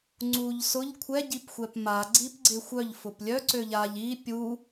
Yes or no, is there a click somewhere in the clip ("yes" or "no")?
yes